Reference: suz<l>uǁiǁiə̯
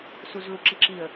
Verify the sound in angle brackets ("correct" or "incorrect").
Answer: correct